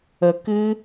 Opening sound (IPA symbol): ə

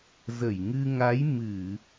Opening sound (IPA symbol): z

